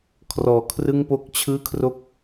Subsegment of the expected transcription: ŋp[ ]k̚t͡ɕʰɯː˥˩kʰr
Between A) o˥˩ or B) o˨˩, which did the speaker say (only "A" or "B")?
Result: A